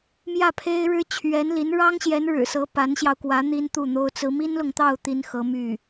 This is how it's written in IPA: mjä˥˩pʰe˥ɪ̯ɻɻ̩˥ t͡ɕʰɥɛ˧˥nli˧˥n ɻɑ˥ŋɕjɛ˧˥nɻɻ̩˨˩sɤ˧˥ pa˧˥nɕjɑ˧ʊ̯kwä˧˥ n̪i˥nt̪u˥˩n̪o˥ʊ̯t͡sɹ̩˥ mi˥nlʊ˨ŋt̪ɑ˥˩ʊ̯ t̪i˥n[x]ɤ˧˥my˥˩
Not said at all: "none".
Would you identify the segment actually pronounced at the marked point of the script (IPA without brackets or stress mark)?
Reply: x